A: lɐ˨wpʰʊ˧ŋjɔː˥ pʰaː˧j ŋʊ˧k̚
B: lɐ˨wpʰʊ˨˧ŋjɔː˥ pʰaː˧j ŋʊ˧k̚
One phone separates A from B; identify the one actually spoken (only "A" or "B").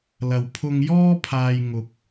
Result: A